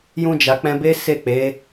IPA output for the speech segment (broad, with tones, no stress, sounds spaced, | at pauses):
j ũ˧ d͡ʒ a˨ k͡p ɛ̃˧ b e˦ s e˦˨ k͡p e˨˦